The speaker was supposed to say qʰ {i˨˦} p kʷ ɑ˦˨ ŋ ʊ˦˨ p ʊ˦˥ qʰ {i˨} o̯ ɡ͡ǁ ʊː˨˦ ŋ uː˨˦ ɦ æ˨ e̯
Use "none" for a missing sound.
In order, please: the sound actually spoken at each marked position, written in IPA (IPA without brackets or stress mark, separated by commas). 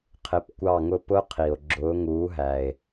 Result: ɪ˨˦, i˨